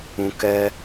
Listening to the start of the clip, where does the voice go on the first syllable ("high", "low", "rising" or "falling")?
high